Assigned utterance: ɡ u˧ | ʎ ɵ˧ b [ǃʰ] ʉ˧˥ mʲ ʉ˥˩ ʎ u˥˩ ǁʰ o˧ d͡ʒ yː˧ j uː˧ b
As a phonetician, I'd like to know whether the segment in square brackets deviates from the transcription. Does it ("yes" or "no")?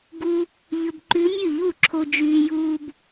yes